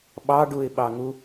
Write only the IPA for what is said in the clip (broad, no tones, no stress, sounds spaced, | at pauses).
ɓ ɑ ɖ u ɪ̯ ɓ ɑ ŋ u